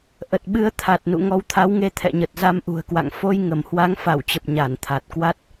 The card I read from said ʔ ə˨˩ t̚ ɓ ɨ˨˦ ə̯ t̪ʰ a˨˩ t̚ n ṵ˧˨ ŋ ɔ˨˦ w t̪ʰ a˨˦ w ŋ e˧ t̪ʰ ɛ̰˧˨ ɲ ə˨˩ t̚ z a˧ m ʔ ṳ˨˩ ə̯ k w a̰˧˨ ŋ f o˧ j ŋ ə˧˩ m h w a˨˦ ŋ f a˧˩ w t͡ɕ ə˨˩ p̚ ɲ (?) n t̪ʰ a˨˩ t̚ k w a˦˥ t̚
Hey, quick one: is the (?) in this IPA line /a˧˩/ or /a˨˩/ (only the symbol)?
a˧˩